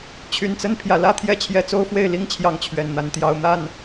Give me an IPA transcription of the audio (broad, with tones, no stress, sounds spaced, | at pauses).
t͡ɕʰ y˨˩ n t͡s ə˥˨ n pʰ j ä˩ l ä˥˨ t̪ʰ j ɛ˥˨ t͡ɕʰ j ɛ˨˦ t͡s o˦ ʊ̯ f w e˥˨ ɪ̯ l i˦ ŋ t͡ɕʰ j ɑ˨˦ ŋ t͡ɕʰ ɥ ɛ˨˩ n n̪ a˨˦ n t̪ j ɑ˨˦ ʊ̯ n̪ a˥˨ n